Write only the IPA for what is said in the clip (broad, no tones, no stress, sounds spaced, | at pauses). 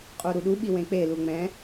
qʼ o ɾ u ɗ u ɓ i w ẽ k͡p e l u ŋ͡m ɛ̃